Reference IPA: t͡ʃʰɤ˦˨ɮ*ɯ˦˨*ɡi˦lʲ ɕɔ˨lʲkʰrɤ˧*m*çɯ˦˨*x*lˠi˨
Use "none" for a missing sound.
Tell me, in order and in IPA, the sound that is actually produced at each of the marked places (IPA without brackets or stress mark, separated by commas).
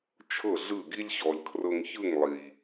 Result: ɯ˦˨, ŋ, ŋ